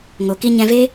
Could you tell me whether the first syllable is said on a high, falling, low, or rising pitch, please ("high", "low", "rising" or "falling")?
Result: low